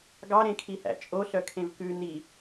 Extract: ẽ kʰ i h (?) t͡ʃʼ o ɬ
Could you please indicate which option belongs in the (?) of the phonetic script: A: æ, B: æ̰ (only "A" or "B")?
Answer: B